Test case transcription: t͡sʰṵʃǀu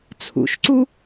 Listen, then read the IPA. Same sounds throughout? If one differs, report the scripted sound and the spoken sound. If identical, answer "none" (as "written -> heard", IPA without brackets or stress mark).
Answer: none